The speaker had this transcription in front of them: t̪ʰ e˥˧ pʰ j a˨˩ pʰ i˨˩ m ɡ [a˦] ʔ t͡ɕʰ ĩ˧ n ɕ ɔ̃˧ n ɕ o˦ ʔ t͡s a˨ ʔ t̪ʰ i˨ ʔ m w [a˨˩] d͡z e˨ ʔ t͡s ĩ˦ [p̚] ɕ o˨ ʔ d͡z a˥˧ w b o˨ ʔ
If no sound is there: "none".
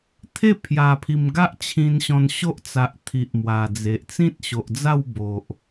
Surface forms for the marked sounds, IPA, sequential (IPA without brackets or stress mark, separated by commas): a˦, a˨˩, t̚